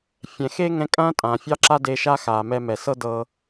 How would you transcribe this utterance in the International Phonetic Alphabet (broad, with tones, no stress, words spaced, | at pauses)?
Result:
fʲɛ̃˩xe˥ ŋɛ̃˧kʼɐ̃ː˥ tʼã˩fʲɑ˥ǁa˥ de˧ʃa˥xaː˩ mɛ˧mɛ˩sɤ˥ dɤ˧